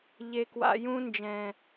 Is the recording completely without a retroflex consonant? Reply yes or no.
yes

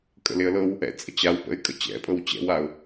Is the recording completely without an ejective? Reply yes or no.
no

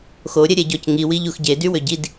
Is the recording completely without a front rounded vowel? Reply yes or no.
no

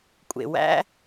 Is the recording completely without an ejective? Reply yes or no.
no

